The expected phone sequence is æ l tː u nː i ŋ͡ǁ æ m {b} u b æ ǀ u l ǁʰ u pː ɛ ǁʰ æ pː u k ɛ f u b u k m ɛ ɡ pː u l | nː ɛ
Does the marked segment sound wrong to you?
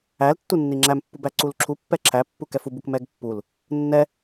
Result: yes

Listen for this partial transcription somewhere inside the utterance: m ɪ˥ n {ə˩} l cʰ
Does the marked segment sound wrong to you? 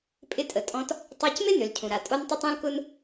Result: yes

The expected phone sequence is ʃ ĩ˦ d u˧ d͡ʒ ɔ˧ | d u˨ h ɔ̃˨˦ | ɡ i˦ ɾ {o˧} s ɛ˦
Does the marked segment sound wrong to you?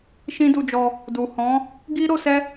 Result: no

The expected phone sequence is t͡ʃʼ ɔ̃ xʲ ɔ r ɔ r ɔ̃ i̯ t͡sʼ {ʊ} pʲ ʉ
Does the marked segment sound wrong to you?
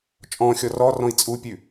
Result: yes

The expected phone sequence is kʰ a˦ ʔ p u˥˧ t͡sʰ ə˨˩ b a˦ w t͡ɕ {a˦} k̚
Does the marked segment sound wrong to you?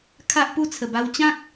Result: yes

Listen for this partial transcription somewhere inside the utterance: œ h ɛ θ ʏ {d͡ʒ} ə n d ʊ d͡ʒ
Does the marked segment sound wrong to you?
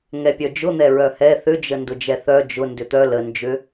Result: no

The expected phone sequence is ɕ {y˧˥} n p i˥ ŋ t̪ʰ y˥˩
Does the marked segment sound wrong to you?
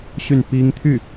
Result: yes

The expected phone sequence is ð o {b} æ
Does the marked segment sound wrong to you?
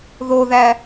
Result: yes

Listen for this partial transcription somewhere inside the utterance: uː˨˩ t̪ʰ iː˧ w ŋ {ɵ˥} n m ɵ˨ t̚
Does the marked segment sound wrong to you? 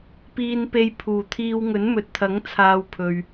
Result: yes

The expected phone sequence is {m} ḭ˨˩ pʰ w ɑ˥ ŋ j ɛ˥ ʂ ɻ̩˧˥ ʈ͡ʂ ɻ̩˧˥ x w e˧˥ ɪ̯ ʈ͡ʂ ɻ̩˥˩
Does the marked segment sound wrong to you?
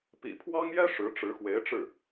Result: yes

